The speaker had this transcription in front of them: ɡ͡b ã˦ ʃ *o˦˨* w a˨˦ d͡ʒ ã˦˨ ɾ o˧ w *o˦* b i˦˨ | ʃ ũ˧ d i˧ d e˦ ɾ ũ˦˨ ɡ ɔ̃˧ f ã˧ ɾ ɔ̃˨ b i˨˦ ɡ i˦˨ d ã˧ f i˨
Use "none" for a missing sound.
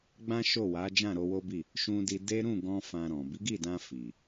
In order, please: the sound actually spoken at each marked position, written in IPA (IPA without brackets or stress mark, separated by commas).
o˦˨, o˦